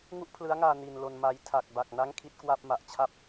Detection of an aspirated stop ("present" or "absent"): present